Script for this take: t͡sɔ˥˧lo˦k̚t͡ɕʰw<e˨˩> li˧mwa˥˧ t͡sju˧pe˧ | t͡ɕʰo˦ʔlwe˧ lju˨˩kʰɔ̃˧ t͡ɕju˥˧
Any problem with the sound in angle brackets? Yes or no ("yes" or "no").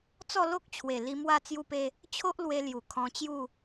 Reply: no